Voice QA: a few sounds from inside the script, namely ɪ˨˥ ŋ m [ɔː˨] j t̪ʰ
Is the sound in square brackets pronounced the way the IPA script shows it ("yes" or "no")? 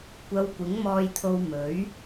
no